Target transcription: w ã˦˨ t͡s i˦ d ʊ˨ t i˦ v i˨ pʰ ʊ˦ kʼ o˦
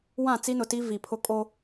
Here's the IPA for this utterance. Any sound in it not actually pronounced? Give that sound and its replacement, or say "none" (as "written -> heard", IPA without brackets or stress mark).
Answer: d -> n